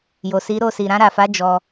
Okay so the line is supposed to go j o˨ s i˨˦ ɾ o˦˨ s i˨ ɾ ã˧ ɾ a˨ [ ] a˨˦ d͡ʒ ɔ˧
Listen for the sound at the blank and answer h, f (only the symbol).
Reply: f